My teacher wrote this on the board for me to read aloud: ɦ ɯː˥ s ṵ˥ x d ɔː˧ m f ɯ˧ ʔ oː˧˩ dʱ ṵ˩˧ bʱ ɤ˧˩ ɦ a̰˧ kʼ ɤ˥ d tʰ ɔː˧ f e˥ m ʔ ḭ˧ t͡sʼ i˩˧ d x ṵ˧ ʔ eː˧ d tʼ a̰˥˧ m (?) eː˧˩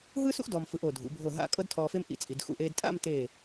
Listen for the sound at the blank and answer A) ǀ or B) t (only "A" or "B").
B